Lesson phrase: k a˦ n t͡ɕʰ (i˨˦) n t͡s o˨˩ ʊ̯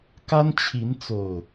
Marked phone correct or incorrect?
correct